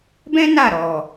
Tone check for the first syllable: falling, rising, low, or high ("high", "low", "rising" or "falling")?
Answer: high